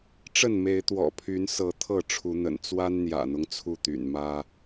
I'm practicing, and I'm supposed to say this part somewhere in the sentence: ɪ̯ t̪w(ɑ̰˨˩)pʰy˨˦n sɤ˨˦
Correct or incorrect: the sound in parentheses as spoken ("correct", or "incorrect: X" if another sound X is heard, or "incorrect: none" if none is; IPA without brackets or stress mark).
incorrect: ɔ̰˨˩